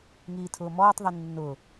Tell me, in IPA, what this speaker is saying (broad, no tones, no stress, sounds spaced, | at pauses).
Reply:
ŋ iː tʰ ʊː m ɔː tˤ ðˤ i nː ʊ